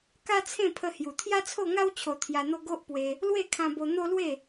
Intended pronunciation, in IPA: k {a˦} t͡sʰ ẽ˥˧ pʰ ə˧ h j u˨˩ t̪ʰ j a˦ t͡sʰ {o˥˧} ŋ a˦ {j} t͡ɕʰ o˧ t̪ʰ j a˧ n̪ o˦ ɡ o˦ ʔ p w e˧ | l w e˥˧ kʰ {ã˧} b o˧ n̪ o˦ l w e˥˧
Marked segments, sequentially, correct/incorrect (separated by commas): correct, correct, incorrect, correct